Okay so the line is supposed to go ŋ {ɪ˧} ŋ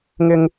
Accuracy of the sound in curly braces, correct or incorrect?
incorrect